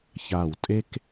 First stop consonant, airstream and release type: ejective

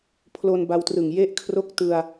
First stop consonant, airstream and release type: aspirated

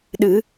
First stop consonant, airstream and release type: implosive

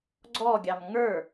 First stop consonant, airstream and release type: click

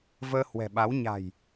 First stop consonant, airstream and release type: implosive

